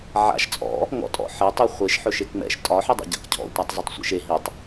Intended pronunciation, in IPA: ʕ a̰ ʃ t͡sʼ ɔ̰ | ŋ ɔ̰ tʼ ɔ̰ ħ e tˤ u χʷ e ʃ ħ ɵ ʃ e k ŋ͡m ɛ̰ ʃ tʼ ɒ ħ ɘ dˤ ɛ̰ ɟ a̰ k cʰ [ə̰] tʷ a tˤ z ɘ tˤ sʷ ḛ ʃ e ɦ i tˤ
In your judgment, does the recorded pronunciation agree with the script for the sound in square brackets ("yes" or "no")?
no